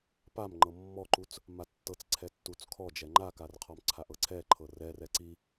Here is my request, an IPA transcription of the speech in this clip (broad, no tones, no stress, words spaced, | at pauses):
pam ŋ͡ǃɤmːɔǃut͡s | matːɤt͡s ǀʰɛtːut͡skʰɔd͡ʒɛ ŋ͡ǃakarqʰɔmǀʰaʔ ɤǀʰɛǃʰɤ rɛrɛ ǀi